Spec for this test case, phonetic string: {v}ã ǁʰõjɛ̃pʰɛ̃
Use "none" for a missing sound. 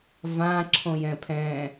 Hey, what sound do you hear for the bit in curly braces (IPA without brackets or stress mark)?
v